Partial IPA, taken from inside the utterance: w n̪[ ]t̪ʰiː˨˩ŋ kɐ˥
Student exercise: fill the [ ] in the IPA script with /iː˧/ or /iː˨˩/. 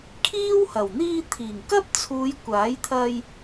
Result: iː˧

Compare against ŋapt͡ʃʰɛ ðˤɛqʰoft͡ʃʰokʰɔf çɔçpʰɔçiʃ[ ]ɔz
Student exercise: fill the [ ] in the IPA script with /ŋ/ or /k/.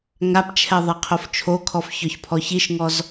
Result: ŋ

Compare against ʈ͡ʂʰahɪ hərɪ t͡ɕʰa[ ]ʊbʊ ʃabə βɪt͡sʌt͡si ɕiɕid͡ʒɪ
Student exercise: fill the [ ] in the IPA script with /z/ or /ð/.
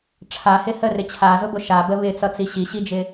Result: z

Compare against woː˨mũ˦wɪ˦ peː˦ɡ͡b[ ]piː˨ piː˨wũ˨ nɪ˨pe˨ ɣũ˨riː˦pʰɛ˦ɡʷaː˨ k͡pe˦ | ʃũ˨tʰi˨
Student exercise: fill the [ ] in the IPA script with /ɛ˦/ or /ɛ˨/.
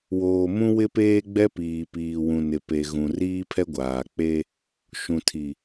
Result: ɛ˦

